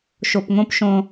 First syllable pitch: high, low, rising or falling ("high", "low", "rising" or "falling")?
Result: low